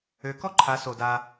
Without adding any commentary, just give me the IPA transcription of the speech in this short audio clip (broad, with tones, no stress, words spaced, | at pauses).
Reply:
ø˨˦kɔ˦ǃʰa˨˦ so˨da˧